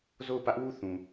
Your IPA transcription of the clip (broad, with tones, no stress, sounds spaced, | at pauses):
z o˦˨ ʊ̯ p ä˦ ʔ w u˦˨ θ ũ˨